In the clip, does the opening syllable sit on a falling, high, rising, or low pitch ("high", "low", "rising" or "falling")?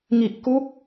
low